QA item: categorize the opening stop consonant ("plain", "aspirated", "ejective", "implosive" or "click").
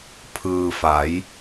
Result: aspirated